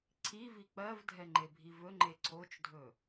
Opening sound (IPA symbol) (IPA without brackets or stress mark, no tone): ǀʰ